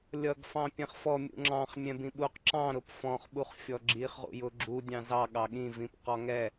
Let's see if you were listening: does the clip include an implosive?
yes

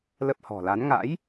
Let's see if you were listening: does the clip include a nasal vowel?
no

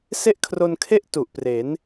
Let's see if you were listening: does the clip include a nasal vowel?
no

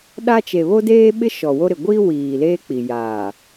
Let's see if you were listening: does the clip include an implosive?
yes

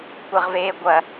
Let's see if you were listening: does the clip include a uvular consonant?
yes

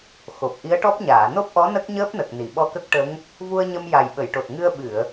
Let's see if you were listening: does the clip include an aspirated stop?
no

